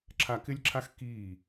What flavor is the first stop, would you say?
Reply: click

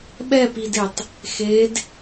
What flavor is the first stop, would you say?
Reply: implosive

